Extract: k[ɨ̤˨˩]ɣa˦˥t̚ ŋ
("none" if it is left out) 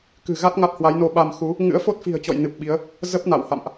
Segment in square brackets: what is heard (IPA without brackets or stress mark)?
ɨ̤˨˩